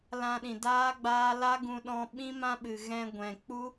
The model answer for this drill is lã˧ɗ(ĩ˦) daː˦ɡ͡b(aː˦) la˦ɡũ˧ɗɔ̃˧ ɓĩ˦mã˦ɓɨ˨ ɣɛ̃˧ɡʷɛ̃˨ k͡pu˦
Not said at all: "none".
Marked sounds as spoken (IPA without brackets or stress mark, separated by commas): ĩ˨, aː˦